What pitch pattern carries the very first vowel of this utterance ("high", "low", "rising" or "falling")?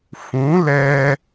rising